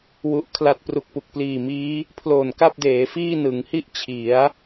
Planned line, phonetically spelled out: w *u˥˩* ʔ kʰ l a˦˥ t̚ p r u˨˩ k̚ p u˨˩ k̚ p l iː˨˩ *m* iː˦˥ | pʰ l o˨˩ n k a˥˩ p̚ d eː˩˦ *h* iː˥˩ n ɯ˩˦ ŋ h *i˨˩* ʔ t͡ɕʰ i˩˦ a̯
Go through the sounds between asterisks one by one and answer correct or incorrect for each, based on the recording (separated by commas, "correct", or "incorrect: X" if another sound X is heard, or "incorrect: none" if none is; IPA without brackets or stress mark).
incorrect: u˦˥, correct, incorrect: f, incorrect: i˥˩